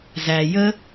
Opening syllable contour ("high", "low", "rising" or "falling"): low